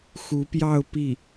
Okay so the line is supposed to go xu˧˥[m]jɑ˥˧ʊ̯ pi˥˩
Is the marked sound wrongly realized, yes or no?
yes